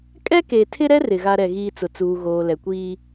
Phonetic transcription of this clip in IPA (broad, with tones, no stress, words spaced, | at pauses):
kʼɛ˦ke˨tʰɪ˦ɾɛ˦ rɪ˨ɣa˦ɾɛ˨ ɣiː˦t͡sʊ˨t͡suː˨ ɣoː˨lɛ˨kʷiː˦